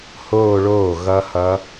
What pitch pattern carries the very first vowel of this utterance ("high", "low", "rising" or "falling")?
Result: falling